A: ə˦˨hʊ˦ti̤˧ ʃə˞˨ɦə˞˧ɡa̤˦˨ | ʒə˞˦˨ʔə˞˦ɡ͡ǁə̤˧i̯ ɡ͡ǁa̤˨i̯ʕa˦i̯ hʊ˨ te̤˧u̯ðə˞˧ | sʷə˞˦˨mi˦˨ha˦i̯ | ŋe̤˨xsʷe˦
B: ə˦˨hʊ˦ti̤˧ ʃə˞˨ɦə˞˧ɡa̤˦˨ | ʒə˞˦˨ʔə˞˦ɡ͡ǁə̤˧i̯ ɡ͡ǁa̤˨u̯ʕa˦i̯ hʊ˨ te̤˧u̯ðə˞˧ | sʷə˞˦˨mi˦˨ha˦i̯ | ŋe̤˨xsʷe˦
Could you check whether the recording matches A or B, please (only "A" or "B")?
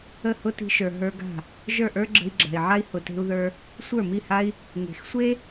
A